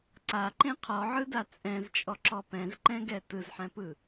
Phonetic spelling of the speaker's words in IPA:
ǀaǃẽ qʰɔʕɯda t͡sʼɛ̃zt͡ʃʼɔǁɔ pɛ̃zǃɛ̃ɡɛ tɯzħɛ̃pɯ

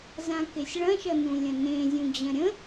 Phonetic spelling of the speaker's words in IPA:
zãkesʲɭɐ̃ʃʌ nũlʲə̃nẽ zʲũd͡ʑɐ̃ɾʲə̃

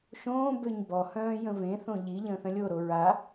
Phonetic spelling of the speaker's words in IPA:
ʃõːbøɲ bɔhœ̃ː jə̃vẽθõ ʎi ʎə̃ːθə̃lʲoɾo ɹa

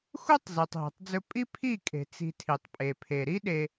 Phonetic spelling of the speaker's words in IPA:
xu˦tˤ ze˨tˤɦe̤˨tˤd͡zɵ˦ pʼi˦pʰi˦˨kʼe̤˨ t͡si̤˧tʰi˨tˤpʼe˨pʰe˨ ɾi˦ɗe˧

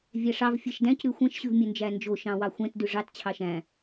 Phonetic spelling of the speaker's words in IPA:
vʲæʂɑv fʲɛʃdæ̃c ɾʉxʷɛ̃ʃ ɕʉvmʲɵnd͡ʒænd͡ʒo ʃɑ̃wɑxʷɛ̃t dʉʐɑt t͡ɕʰɑʃæ̃

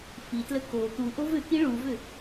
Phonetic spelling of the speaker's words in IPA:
fitlə ko t̪uʔov ʏki ɭuvʏ

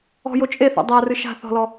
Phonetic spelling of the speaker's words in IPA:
ɔ̤jo t͡ʃʼeθa̰ dˤarɨ ʃa̤ θɔ̤lɔ

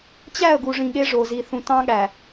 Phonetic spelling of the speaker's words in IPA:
t͡ɕæ˦˨ə̯ɡu˨ʐĩ˨ ɠe˦ʐo˨ zi˨θũ˨ tɑ̃˦ɠæ˨

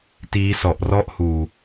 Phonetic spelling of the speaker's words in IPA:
tiː˦˥sɔ˨˩ʔrɔ˥˩ʔhuː˨˩

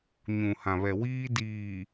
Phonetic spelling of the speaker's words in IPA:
ɲũ˨hã˨βɛ˨wiː˦ diː˨

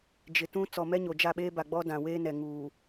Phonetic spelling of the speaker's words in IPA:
d͡ʒɪ˨tũ˦ t͡sɔ˨mɛ˦ɲo˨ d͡ʒa˦˨ɓeː˦ba˨ɡ͡bɔ˦ dã˨weː˦nɛ˨ ŋuː˨

